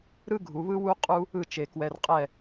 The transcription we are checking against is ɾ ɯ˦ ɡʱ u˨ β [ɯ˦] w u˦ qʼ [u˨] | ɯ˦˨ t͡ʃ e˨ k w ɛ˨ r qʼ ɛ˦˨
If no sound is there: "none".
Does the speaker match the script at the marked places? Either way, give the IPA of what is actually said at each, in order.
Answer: ɯ˦, u˦

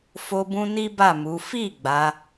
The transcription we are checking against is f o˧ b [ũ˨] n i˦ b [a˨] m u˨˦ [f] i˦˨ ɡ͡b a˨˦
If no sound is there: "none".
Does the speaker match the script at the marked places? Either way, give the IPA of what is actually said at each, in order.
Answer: ũ˧, a˦˨, f

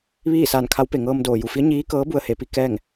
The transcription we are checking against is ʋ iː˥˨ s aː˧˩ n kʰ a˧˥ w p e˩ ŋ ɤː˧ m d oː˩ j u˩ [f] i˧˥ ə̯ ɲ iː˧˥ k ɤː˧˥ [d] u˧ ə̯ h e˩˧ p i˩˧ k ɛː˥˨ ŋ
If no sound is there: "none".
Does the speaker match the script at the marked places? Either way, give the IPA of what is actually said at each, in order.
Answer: f, b

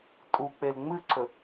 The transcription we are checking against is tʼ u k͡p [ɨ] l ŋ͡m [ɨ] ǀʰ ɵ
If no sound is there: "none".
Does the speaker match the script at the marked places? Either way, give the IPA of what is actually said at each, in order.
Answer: e, ɨ

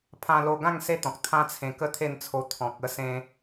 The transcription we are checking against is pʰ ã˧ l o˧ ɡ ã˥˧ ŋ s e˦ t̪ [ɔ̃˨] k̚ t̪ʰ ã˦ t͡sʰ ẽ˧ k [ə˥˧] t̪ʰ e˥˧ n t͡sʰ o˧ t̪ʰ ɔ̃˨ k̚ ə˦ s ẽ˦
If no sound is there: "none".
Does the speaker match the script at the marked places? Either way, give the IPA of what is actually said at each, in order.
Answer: ɔ̃˨, ə˥˧

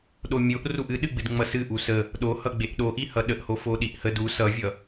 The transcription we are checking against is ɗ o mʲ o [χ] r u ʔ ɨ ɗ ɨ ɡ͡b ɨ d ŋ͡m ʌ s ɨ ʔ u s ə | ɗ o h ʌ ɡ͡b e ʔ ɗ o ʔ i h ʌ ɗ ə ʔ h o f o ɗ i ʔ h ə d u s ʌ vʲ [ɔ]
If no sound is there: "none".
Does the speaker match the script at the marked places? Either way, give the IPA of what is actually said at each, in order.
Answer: ʔ, ʌ

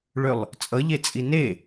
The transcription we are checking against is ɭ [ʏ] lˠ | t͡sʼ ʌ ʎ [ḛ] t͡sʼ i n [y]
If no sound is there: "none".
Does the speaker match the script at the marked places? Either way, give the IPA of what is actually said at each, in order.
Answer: ʏ, e, e

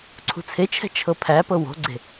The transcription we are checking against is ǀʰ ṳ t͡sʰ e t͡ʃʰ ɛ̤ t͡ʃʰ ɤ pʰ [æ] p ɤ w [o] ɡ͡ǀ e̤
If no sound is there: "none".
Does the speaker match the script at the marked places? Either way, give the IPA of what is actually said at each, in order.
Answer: æ, o̤

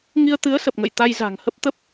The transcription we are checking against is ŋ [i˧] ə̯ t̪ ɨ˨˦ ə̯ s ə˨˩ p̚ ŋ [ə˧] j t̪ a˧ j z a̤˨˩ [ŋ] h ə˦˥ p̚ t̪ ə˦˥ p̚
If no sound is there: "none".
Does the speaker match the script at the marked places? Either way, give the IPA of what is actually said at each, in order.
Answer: i˧, ə̰˧˨, ŋ

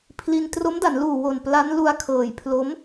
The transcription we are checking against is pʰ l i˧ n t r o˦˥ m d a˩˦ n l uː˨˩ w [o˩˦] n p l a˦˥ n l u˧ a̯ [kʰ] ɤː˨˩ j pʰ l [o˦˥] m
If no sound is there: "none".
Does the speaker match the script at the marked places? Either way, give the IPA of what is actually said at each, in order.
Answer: o˨˩, kʰ, o˦˥

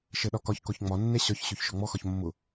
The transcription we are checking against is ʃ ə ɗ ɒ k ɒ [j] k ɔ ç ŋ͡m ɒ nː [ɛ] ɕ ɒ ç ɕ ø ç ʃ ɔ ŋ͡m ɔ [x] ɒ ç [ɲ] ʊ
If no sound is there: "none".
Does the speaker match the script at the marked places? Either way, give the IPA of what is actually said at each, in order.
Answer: ç, ɛ, x, mː

